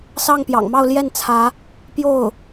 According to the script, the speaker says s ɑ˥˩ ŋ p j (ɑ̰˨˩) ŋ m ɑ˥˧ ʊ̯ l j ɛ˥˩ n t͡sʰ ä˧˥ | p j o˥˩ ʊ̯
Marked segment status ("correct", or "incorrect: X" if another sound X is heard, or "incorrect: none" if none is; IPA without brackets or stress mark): correct